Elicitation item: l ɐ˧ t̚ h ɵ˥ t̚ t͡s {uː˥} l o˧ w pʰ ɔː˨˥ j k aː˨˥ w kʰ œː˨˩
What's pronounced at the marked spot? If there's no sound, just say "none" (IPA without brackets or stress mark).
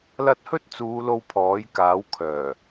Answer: uː˨˧